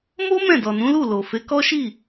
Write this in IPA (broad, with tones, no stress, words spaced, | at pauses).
mo˦ mɛ̃˦˨dɔ˨nũ˨˦lu˦˨ lo˨ fe˨˦kɔ˦ʃi˦˨